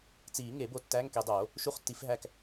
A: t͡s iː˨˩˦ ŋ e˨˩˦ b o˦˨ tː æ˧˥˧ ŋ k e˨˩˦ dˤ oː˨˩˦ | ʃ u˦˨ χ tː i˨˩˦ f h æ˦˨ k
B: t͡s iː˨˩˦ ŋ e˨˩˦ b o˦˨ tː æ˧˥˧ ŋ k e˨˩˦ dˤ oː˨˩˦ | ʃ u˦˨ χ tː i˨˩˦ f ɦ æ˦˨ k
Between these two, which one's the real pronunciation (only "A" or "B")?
B